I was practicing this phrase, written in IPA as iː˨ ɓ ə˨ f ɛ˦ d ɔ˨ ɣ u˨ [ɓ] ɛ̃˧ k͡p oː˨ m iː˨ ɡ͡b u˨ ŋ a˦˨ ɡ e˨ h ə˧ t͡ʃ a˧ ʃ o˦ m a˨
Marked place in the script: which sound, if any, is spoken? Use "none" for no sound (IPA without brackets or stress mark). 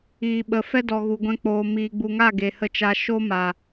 ɡʷ